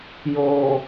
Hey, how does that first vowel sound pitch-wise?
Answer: low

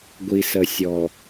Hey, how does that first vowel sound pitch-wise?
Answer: low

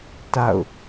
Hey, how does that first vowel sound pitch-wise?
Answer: falling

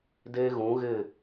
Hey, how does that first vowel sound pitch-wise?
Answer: high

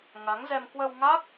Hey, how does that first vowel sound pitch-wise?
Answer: rising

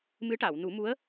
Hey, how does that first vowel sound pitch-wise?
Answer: rising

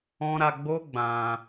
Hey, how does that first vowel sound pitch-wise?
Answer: high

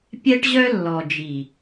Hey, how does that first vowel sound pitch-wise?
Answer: high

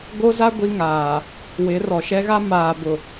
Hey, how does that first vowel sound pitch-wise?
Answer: high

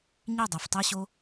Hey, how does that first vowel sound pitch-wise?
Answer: falling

